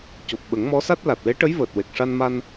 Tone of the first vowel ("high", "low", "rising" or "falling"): low